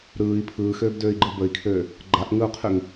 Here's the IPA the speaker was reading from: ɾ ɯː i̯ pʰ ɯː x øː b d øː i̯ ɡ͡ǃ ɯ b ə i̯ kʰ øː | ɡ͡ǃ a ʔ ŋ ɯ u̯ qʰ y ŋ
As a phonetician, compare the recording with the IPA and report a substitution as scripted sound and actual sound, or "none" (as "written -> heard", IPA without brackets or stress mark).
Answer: none